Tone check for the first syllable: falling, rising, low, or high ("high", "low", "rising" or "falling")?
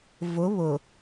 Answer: rising